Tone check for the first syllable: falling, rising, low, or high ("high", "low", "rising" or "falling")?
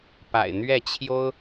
low